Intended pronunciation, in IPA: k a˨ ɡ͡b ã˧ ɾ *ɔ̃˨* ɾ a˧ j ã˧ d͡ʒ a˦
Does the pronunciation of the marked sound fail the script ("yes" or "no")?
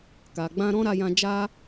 yes